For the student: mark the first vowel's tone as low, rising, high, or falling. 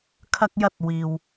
high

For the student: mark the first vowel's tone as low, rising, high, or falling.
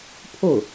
falling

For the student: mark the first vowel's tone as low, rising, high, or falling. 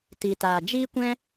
low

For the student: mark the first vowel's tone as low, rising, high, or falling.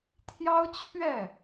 high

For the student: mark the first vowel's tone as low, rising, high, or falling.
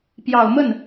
low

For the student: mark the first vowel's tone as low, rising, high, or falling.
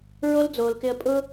high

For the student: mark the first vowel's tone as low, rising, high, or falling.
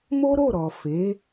high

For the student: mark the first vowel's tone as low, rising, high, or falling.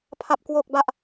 low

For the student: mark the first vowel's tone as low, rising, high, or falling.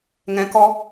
low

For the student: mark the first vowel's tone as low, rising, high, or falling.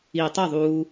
low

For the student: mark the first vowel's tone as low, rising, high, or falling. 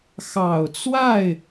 low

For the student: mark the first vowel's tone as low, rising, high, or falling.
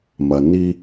low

